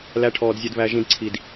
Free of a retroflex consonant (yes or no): no